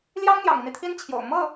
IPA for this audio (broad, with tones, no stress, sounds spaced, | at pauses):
l j ɑ˥ ŋ n̪ j ɑ̰˨˩ ŋ i˦ n̪ i˩ t̪ʰ i˥ n t͡ɕʰ j o̰˨˩ ʊ̯ m ɤ˥˩